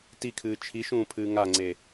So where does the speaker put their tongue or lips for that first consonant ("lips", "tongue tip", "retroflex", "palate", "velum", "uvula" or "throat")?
tongue tip